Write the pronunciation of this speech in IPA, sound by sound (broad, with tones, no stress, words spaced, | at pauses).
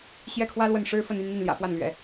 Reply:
ɕjɛ˥˩kʰwä˥ lwə˥˩nʂɻ̩˥fə˥˧ny˥˧n n̪i˥˩nljä̰˨˩fwa˥˩nlɥɛ̰˨˩˦